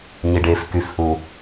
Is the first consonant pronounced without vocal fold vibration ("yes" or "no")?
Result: no